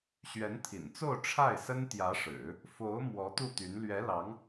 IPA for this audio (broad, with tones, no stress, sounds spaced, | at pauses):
ɕ ɥ ɛ˧˥ n t̪ʰ ḭ˨˩ n t͡s o˥˧ ʊ̯ ʈ͡ʂʰ a˥˩ ɪ̯ s ə˥ n t̪ j ä˧˥ ʂ ɻ̩˨˩˦ | f o˧˥ ʊ̯ m w ɔ˧˥ t̪ u˥˩ t̪ y˧˥ n l ɥ ɛ˧˥ l ɑ˧˥ ŋ